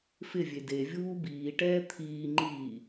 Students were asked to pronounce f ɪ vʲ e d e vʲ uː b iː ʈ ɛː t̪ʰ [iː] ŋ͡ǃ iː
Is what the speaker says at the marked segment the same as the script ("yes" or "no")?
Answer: yes